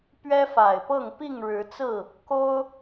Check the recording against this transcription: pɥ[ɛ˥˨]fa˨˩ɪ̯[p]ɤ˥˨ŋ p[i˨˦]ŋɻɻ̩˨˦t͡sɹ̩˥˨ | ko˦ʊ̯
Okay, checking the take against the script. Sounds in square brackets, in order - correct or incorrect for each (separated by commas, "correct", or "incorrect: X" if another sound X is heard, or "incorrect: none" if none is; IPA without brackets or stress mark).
incorrect: ɛ˦, correct, incorrect: i˥˨